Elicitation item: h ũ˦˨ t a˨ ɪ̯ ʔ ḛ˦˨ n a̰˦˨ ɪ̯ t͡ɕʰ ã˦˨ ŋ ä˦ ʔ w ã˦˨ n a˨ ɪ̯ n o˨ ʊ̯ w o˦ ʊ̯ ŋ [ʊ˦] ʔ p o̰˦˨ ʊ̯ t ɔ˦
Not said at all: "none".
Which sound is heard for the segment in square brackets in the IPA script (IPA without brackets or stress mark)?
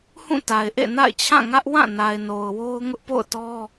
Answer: ʊ˦